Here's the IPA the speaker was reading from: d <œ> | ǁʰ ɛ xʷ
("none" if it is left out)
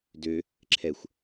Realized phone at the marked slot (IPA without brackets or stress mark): ø